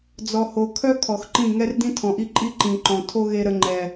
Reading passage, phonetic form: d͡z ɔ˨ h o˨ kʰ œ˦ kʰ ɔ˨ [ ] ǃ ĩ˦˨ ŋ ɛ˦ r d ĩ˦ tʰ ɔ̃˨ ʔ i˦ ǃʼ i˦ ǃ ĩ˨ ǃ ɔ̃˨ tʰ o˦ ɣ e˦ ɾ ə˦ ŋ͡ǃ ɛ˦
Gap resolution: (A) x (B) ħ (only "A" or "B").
A